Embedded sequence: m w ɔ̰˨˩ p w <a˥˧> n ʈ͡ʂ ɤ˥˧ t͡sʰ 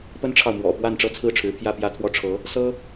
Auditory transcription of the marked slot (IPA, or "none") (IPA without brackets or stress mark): a˥˧